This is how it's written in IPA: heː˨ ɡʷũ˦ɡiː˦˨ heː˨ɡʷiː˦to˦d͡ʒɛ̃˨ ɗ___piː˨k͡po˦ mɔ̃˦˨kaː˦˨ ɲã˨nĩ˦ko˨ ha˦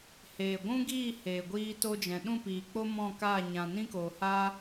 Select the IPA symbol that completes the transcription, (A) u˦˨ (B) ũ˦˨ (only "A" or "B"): B